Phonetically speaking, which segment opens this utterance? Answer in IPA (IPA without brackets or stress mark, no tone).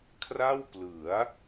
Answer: kʰ